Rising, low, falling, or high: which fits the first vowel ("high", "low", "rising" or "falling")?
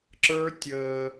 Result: high